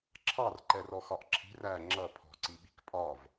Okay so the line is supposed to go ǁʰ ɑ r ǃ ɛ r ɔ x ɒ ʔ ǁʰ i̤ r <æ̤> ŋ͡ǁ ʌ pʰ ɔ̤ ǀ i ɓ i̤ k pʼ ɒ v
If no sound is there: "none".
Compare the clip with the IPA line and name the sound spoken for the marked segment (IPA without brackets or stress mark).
æ